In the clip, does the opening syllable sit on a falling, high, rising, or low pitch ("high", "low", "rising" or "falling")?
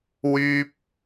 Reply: high